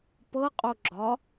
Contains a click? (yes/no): yes